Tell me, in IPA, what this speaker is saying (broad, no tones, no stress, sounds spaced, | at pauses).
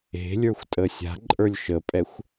e̤ lʲ ə˞ xʷ tʼ ə sʲ a̤ ǃʼ ə˞ lʲ ʃ ə pʼ ɛ xʷ